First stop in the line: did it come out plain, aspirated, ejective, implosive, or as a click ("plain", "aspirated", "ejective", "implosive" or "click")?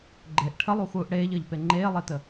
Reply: click